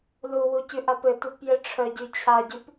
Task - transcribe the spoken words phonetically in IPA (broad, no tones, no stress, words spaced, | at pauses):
luwucʉ ʔapɘ tupjɘʈ͡ʂʰœ ɟyt͡ɕʰaɟyp